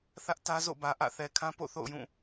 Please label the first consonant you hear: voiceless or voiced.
voiceless